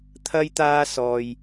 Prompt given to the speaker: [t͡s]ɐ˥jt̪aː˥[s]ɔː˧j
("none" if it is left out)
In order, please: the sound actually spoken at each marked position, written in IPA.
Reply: t̪ʰ, s

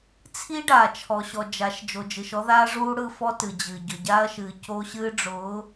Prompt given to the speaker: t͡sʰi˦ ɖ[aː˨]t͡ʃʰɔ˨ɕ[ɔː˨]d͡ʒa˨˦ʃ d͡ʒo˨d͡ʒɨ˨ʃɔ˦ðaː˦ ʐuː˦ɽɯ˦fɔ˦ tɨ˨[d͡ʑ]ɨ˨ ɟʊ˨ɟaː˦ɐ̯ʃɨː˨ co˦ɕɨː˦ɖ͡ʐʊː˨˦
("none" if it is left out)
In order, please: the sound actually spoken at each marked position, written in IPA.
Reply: aː˨, ɔ˨, d͡ʑ

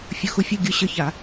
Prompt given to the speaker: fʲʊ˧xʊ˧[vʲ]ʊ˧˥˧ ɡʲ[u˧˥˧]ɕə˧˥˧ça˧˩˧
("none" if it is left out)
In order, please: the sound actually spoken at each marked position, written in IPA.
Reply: fʲ, ʊ˧˥˧

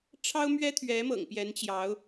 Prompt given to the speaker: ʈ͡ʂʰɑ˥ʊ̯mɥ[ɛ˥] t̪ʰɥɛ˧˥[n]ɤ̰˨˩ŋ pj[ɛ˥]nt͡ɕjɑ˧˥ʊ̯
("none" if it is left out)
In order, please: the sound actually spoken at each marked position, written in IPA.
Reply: ɛ˥, m, ɛ˧˥

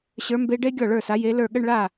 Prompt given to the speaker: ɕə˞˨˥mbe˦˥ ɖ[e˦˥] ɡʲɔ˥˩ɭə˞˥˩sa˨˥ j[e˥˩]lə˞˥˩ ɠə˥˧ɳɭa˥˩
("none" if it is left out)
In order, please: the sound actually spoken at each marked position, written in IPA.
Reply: e˦˥, e˨˥

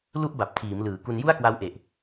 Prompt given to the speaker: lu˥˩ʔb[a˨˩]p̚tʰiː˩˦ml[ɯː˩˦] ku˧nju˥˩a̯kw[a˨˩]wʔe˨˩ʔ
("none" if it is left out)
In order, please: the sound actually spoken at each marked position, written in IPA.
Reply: a˨˩, ɯː˩˦, a˦˥

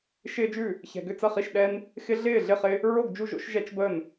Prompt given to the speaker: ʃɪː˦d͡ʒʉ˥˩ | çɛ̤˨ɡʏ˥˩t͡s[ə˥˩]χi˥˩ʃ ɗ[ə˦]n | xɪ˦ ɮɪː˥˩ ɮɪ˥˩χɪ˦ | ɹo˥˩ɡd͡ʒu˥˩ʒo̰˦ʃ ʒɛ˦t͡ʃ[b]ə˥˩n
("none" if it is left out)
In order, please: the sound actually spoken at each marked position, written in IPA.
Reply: ɐ˥˩, ɛ˦, b

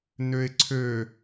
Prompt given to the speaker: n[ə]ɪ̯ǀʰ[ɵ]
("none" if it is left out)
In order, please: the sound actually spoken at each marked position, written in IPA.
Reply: ø, ø

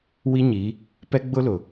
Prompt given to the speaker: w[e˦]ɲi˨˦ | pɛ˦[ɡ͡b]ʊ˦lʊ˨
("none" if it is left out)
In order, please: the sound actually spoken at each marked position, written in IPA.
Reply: i˦, ɡ͡b

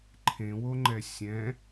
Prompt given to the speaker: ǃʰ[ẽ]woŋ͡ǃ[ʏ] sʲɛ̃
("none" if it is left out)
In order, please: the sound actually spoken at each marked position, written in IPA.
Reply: ẽ, ɛ

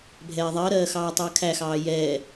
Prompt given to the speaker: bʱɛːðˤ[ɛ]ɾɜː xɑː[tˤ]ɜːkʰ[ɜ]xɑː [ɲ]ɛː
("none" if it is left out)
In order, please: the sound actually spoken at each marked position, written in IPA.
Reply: ɜ, tˤ, æ, j

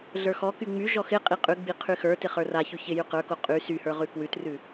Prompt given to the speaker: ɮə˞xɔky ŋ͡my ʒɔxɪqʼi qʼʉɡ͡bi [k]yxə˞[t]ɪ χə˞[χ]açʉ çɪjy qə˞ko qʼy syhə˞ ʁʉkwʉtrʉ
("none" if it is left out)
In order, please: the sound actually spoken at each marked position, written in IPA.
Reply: qʰ, t, r

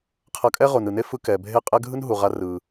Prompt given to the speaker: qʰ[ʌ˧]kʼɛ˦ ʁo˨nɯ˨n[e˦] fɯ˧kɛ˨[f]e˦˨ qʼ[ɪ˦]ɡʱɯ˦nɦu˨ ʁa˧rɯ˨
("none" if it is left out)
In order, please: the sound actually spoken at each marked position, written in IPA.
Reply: ʌ˧, e˦, bʱ, ɛ˦

